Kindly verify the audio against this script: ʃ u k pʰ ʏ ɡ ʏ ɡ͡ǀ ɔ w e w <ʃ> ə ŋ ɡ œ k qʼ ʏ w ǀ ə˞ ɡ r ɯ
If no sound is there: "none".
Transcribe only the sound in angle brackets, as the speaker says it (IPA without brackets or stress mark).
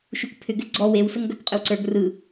s